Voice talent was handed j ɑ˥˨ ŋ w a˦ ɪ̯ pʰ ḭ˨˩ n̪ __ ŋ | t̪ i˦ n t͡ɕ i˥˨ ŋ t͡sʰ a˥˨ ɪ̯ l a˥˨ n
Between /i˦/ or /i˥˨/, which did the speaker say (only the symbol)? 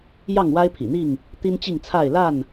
i˥˨